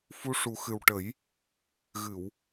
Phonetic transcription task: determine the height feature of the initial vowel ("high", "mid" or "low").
high